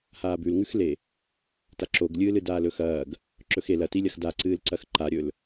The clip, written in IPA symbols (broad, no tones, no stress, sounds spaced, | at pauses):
h aː b ʉ l ŋ ʉ x l e | t a ǁ o ɡ lʲ ɨː l ɨ d aː l ɵ x ɐː ɡ | ǁ ɵ x e l ɐ t i lʲ ɐ x d a ǀ ɨː l ǀ ɐ x ǃ a ɾʲ ɵ l